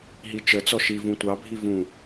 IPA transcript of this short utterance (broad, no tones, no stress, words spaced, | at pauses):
ɦit͡ʃət͡sɔ ʃi vũtʷɑbʱi vũ